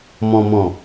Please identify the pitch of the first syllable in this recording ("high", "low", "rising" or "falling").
low